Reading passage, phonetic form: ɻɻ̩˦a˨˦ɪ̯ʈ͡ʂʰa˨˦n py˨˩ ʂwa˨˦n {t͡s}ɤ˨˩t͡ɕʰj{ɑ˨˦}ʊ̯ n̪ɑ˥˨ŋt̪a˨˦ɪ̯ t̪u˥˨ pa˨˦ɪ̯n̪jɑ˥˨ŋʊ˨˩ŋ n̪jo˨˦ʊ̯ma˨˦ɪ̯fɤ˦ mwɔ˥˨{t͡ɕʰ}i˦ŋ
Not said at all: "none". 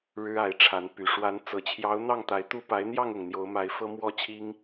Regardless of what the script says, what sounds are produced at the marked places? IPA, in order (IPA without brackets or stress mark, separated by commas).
t͡s, ɑ˨˦, t͡ɕʰ